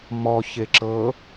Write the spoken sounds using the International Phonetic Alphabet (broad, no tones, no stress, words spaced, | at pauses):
mɔ çeǁɤ